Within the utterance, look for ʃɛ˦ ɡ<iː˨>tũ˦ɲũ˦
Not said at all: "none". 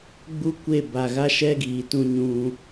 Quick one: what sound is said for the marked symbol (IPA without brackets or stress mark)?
iː˨